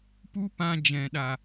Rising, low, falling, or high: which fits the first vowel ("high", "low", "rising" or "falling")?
high